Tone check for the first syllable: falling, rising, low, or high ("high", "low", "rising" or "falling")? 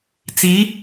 rising